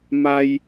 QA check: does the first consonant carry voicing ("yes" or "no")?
yes